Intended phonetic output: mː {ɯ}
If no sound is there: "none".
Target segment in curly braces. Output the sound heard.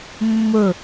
ʊ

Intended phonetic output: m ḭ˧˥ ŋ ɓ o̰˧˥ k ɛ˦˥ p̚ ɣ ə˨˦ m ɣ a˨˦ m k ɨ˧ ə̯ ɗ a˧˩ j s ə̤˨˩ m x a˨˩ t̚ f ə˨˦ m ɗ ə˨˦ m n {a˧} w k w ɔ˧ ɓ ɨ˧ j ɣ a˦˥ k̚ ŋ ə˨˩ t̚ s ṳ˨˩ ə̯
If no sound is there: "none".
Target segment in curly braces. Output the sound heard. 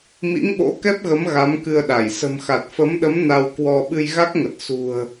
a˧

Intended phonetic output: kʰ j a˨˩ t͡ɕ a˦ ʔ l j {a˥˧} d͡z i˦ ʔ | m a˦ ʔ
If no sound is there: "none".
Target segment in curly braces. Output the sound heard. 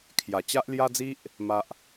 a˦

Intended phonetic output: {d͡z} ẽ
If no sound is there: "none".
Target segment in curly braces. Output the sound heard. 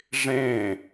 ʐ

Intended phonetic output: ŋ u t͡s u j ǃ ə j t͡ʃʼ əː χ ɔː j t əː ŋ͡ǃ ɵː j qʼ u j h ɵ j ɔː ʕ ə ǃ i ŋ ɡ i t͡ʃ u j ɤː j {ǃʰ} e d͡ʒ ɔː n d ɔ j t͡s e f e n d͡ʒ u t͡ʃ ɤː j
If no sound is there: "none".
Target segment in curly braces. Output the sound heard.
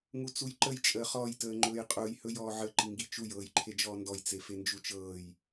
ǃʰ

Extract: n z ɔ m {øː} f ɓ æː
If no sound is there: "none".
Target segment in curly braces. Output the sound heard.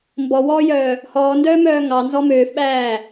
øː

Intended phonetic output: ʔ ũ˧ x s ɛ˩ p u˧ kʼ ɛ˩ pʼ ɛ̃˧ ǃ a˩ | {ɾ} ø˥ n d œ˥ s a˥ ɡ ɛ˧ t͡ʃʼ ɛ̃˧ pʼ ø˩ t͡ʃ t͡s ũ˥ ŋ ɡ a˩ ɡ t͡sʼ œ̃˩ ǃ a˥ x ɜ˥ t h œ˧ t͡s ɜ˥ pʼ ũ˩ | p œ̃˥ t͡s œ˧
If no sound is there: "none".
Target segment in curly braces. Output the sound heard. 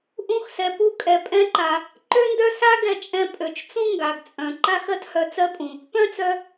ǃ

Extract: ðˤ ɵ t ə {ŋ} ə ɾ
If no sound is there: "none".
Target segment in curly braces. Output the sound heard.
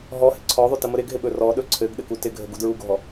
m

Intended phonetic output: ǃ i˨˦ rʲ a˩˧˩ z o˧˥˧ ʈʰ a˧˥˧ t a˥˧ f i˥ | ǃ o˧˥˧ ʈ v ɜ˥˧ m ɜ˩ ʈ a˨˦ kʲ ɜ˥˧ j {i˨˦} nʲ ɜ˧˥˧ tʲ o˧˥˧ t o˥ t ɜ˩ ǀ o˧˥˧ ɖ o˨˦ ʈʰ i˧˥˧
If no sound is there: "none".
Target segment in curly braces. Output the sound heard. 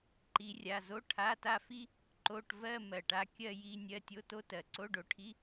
i˧˥˧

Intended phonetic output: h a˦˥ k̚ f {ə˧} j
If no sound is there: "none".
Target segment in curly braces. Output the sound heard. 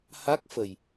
ə˨˩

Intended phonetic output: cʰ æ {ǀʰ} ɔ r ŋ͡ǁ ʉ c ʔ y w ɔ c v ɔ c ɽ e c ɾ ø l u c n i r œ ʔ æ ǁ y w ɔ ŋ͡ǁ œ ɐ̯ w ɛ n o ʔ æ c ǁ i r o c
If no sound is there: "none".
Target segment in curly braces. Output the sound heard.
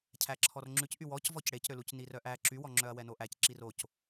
ǁʰ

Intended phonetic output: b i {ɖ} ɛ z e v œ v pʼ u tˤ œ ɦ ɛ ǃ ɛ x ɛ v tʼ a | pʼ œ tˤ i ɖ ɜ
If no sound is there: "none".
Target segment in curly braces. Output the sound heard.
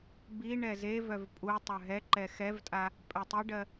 ɳ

